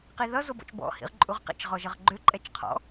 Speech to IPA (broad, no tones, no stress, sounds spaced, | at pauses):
q i ð ʌ z o b ɔ̰ t͡ʃ b ɔ̰ h ḭ ʁ ǃʼ u ʁ q ḭ t͡ʃ ʁ ɔ ʒ ʌ ʁ ɡ͡ǃ ø ǃʼ ɛ t͡ʃ qʰ ɔ̰